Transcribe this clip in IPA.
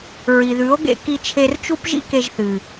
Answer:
ɹ i˨ ð ʉ˨˦ o̯ ɡ ḛ˧ k i˧ t͡ʃʰ e˧ r t͡ʃ u˦ p ʒ ḭ˦ k e˧ ʒ θ ɨ˨

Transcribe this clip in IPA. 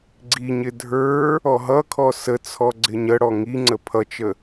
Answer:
ɡ͡ǀ i ɲ ɪ dʱ ə˞ | ɔ ɦ ʌ kʰ ɔ s ə t͡sʰ ɔ ɡ͡ǀ ɪ ɲ ə ɽ ɔ ŋ i ŋ͡ǀ ə pʰ ʌ t͡ʃ ə

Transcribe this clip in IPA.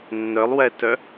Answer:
nː œ lˠ w ɛ t œ

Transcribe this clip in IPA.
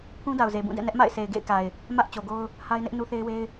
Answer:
pʰ ũ˦ d a˨ ʊ̯ z e˨ b ũ˦˨ d ɛ̰˦˨ n ɛ˦ ʔ m a̰˦˨ ɪ̯ s e˨ ɪ̯ ɡ ḛ˦˨ ɪ̯ k a˨ ɪ̯ | m ä˦ ʔ t͡ɕ o˨ ɡ o˦ ʊ̯ | h a˦ ɪ̯ n ɪ˦ ʔ n u˦ θ e˦ ɪ̯ w e˦ ɪ̯

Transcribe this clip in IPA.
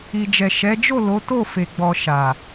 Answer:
i˨ d͡ʒ ɛ˨ ʃ ɛ˨˦ d͡ʒ o˦˨ l o˨˦ t o˦˨ f e˨ ɡ͡b ɔ˨ ʃ a˨

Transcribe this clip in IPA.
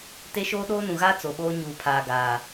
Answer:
t e˦ ʃ oː˦ ɗ oː˦ n ũ˨ ɣ aː˦ t͡s o˨ ɓ oː˦ ɲ uː˨ pʰ aː˨ ɡ aː˨

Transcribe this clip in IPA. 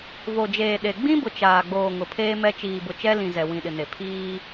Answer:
v o˨ d͡ʒ eː˨ ɗ e˨ ɡ͡b ĩ˦ b ʊ˨ t͡ʃ aː˨ ɡ͡b oː˨ ŋ ʊ˨ pʰ eː˦ m ɛ˦ t͡ʃ iː˨ b ʊ˨ t͡ʃ ɛ˦ l ĩ˨ z ɛ˨ w ĩ˨ ɗ ɪ˨ n e˨ pʰ iː˦

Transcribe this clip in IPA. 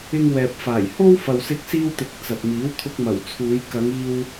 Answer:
ɪ˧ ŋ w ɛː˨ p̚ f aː˨˩ j h o˥ w f ɐ˨ w s ɪ˧ k̚ s iː˧ w t̪ ɪ˨˥ k̚ t͡s ɐ˨ t̚ m iː˨˥ w t̪ʰ ʊ˧ k̚ m ɐ˨˩ w t͡sʰ uː˨˧ j k ɐ˨˧ ŋ iː˧ w

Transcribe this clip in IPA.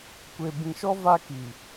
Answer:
kʷ e˨ b ĩ˨ ʃ ɔ˦ v a˦ k i˨

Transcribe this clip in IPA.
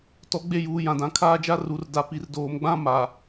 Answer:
t ɔ˨˦ ɡ͡b e˦˨ j uː˨ j ã˨ d ã˨ kʰ aː˦ d͡ʒ a˦ r u˨ r d a˨ p i˨ r d oː˨ m ɡ͡b ã˦ m a˨

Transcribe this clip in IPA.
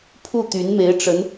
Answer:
pʰ u˥˩ t̪ y˧˥ n m e˧˥ ɪ̯ ʈ͡ʂ ə˧˥ n

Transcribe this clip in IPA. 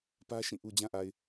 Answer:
p ä˦ ʃ ĩ˦˨ ʔ u˨ d͡ʑ ã˦ ʔ a˨ ɪ̯

